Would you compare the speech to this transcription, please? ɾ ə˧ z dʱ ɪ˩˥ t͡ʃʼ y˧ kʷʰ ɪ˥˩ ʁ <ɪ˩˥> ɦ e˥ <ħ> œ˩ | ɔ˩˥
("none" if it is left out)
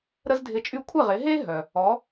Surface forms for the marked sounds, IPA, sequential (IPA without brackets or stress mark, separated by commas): ɪ˩˥, ɦ